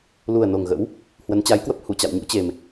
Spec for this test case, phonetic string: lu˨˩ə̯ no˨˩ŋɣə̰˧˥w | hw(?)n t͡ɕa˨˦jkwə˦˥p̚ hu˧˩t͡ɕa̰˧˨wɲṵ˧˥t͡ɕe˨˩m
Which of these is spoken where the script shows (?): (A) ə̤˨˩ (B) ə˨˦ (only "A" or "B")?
B